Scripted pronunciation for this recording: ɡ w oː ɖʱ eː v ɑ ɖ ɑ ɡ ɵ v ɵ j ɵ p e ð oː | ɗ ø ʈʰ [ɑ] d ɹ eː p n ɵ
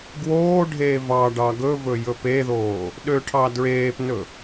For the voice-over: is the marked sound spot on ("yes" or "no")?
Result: yes